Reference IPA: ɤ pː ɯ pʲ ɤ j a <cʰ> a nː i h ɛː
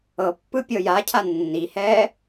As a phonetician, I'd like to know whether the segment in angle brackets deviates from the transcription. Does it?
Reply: no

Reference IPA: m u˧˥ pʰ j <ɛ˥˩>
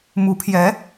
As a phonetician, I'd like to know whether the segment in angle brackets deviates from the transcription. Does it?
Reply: yes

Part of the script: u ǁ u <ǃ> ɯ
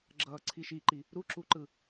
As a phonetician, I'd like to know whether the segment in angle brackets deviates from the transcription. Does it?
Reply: no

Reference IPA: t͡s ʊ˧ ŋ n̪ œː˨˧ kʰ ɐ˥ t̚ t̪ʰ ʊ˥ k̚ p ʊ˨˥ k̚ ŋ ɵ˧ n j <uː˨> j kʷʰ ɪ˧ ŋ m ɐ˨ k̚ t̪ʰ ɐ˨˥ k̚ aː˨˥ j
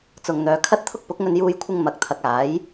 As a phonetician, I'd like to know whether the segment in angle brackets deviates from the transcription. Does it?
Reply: yes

